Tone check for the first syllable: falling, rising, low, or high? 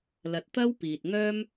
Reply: low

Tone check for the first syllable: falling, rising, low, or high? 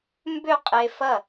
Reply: falling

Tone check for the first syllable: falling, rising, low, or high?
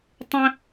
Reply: high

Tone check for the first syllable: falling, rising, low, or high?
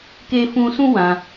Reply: high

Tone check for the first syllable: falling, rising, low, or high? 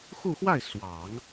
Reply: falling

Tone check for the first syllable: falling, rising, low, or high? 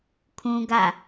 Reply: high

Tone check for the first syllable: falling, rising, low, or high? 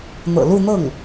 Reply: low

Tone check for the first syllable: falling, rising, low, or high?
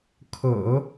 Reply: low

